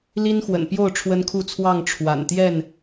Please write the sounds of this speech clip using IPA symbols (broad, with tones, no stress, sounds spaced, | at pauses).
l i˦ n x w ə̰˨˩ n p j o˥˨ ʊ̯ ʈ͡ʂʰ w ə˦ n kʰ u˥˨ t͡sʰ w ɑ˥˨ ŋ ʈ͡ʂʰ w a̰˨˩ n t̪ j ɛ˥˨ n